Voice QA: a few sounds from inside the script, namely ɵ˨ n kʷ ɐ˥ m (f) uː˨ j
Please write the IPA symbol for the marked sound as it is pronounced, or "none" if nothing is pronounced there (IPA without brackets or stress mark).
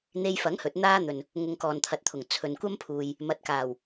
pʰ